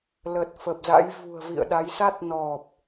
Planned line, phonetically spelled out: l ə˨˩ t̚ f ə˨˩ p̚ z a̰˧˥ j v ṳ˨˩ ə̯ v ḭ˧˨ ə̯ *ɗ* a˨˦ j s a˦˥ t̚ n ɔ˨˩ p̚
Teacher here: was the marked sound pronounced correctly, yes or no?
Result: yes